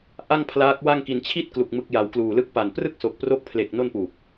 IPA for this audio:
ʔ a˥˩ ŋ pʰ l aː˦˥ k̚ w a˥˩ ŋ k i˧ n t͡ɕʰ i˥˩ t̚ k l u˨˩ k̚ m ɯ˦˥ k̚ j a˧ w k l uː˨˩ l ɯ˦˥ k̚ p a˨˩ n p r ɯ˥˩ k̚ s o˨˩ k̚ p r o˦˥ k̚ pʰ l e˨˩ k̚ n o˥˩ n p uː˨˩ p̚

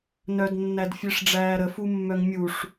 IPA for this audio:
n œ d nː æ d fʲ e ʂ ɖ͡ʐ æː ɾ ə f u mː œ ŋ mʲ u ʂ

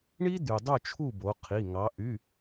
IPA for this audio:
ɳ i˦ d̪ y˩ dˤ u˥˨ t͡ʃʰ u˥˨ b o˩˧ qʰ i˩˧˩ ŋ ɑ˩˧ ʔ y˩˧˩

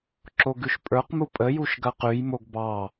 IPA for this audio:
ǁ o ɡ ʉ ʃ pʼ ə˞ q m u pʼ ə j u ʃ ɡ ɐ q ʉ j m o ɡ b ɑ

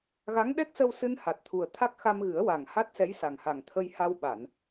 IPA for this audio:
ɣ a˧˥ ŋ ɗ ɛ˦˥ k̚ s ə˧ w s ɨ˧ n h a˨˩ t̚ t̪ʰ u˨˩ ə̯ t̪ʰ a˦˥ k̚ x a˧ m ɣ ɨ˨˩˦ ə̯ w a˨˩ ŋ h a˦˥ t̚ s ɛ˧˥ j s a˨˩ ŋ h a˨˩ ŋ t̪ʰ ə˧ j h a˧ w ɓ a˨˩˨ n

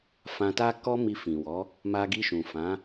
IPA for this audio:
f ã˧ t a˦ k ɔ˦ m i˧ f ĩ˨ w ɔ˨˦ | m a˧ ɡ i˧ ʃ ũ˨ f ã˨˦

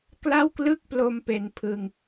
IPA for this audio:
k l a˥˩ w k l ɯ˥˩ k̚ p l o˧ m p e˧ n pʰ ɯ˧ ŋ

